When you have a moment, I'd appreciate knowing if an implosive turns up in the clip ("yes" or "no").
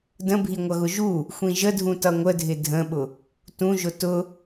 yes